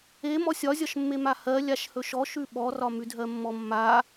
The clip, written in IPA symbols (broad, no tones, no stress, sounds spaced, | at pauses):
e m ɔ sʲ ɒ zʲ ɒ ʃ mː e m a h ɜ lʲ a ʃ h ɵ ʃ ɔ ʃ ʉ ɓ ɔ r ɒ m ʉ dʱ ɜ mː ɔ mː a